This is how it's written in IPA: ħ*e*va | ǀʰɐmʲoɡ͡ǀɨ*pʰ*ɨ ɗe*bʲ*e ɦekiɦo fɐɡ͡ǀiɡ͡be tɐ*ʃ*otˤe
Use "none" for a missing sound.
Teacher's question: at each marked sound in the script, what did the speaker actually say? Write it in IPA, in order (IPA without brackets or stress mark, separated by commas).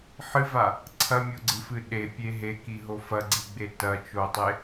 ɨ, f, pʲ, t͡ʃ